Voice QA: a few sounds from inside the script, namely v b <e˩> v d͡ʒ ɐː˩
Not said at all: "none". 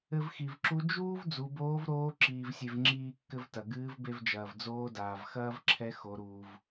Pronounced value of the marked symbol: e˧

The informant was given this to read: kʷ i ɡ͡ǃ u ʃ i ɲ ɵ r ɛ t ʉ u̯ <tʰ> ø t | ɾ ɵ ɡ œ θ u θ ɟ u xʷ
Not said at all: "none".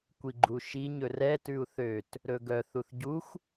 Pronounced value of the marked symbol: θ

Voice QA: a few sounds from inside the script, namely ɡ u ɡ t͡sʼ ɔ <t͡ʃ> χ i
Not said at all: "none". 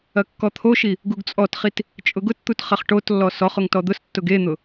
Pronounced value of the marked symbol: t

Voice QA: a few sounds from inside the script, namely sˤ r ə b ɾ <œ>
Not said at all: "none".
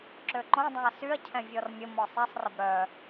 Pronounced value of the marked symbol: œ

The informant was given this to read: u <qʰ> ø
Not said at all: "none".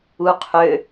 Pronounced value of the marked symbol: qʰ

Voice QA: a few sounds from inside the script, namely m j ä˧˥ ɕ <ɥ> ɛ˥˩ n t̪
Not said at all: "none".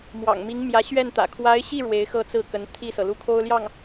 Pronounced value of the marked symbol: ɥ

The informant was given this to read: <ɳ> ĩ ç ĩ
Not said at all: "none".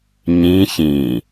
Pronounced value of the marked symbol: ɲ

